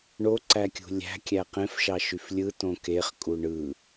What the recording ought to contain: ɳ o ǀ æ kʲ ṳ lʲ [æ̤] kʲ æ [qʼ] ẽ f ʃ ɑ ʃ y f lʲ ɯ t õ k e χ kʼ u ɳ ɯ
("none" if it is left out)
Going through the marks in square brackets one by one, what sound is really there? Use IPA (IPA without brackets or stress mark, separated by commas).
æ̤, q